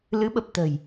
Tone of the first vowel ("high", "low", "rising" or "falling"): rising